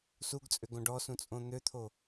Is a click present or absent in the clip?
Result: absent